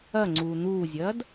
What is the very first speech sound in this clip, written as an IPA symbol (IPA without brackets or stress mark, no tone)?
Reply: ɐ